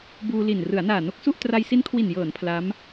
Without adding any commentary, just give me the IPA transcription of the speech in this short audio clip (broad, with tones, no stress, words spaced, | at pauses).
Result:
buː˧ li˨˩n rɯ˩˦a̯naː˨˩no˦˥k̚su˥˩ʔ tra˧jsi˦˥n kʰwi˨˩njɤː˩˦n pʰla˦˥m